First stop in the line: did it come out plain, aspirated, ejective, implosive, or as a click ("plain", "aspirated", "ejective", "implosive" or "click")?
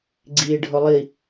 click